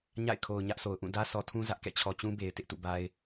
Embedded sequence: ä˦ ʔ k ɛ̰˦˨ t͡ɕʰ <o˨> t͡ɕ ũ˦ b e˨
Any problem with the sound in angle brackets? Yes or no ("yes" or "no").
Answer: yes